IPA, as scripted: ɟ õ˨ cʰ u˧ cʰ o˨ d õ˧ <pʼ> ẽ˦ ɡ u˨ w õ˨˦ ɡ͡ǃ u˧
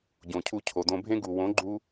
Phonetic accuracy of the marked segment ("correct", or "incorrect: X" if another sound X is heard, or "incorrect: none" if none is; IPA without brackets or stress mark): incorrect: bʱ